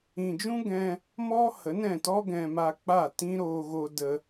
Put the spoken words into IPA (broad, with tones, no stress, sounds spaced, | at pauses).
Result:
ĩ˨ d͡ʒ ũ˦ ɡ ɛ̃˧ | m ɔ˦ h ə˨˦ n ɛ̃˦˨ t ɔ˦ ɡ ɛ̃˧ m a˧ k͡p a˦˨ t ĩ˦ ɾ oː˧ ɣ o˧ d ə˧